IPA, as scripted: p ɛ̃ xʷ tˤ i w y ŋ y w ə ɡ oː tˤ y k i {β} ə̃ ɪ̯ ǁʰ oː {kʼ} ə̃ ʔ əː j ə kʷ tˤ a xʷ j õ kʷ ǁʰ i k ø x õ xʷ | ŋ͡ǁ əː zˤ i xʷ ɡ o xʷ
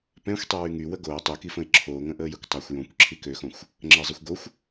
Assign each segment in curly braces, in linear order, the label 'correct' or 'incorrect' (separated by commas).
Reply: incorrect, incorrect